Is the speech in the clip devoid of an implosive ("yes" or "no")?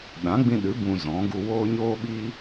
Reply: no